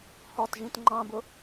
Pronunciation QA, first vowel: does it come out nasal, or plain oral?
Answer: oral